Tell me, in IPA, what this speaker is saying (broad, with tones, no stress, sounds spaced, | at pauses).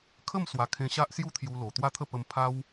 kʰ ə˥˧ m s w a˨˩ kʰ ẽ˧ ɕ a˦ ʔ s j u˦ t̪ʰ j u˧ l o˨˩ t̪ w a˥˧ t̪ʰ ə˥˧ p ə˧ m pʰ a˦ w